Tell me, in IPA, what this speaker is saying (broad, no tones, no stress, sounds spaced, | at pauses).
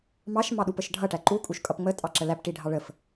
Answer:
m ɑ ʃ m ɑ ɗ u p ə ʃ ɖʱ ʌ ʈ æ ǃ u kʼ u ʃ kʼ ʌ p ŋ͡m ə tʼ ɑ ǁ ə l æ p ʈ i ɖʱ ɑ ɭ ə f